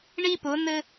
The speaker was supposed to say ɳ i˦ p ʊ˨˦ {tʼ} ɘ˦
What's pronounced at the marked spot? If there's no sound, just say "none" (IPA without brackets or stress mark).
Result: n